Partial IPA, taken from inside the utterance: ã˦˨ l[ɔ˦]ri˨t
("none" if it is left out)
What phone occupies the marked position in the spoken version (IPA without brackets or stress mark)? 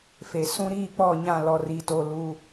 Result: ɔ˨